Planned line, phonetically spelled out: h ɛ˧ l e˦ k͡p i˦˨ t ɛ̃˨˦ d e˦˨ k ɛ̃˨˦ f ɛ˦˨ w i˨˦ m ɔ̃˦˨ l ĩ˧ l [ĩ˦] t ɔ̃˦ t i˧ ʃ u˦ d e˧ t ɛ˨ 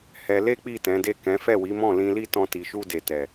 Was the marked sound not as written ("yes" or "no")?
yes